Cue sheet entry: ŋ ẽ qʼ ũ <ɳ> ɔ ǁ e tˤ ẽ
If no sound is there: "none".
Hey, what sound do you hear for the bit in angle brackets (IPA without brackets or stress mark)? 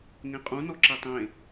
n